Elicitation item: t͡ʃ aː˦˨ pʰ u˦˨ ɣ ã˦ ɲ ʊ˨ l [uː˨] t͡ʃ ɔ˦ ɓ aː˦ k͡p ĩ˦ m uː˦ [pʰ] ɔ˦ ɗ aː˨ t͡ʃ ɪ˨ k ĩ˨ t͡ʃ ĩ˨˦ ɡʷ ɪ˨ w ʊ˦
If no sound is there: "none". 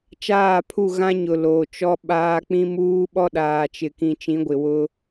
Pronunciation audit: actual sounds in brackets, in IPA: oː˨, ɓ

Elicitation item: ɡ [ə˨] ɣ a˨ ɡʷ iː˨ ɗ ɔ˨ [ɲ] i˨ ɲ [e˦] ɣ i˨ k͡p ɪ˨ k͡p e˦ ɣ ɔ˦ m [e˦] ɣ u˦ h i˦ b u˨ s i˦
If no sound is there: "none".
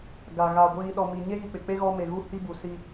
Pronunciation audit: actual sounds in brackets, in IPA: a˨, m, e˦, e˨

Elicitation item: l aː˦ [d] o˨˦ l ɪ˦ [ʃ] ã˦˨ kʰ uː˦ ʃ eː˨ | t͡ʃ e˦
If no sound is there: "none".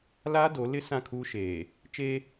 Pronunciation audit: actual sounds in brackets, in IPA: d, s

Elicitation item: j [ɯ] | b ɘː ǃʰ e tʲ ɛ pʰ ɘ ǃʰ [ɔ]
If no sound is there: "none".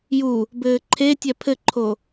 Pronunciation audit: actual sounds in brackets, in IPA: u, o

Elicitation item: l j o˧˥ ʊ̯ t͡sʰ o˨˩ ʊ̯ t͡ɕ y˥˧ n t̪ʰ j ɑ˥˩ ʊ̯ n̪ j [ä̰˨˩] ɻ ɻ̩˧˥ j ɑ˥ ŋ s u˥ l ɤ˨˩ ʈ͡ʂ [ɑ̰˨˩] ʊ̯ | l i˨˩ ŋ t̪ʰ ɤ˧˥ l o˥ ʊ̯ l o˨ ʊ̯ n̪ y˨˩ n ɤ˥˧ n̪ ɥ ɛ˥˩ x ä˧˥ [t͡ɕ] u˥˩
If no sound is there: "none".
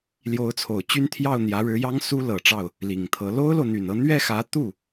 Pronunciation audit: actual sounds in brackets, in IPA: ä˧˥, ɑ˥˩, t̪

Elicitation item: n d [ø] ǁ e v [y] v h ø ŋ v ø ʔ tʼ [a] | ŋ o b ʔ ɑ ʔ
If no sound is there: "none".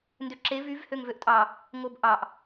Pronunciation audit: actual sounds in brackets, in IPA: ø, y, ɑ

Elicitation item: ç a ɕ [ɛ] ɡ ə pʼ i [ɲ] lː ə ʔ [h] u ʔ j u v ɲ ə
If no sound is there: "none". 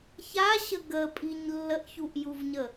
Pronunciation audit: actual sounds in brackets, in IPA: ə, ɲ, ç

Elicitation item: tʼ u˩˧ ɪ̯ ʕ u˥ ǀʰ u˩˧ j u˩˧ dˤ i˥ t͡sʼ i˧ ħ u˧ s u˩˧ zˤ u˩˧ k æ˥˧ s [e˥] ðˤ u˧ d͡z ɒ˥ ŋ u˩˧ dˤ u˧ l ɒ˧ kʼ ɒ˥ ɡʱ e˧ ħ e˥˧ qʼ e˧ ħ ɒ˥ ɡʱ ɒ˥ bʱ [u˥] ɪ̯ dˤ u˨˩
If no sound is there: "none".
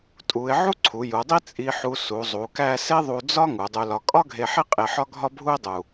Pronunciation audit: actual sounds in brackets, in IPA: e˥, u˥

